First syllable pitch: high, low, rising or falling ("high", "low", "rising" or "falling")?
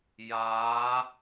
rising